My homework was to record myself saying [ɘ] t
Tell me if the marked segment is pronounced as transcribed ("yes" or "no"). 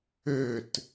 yes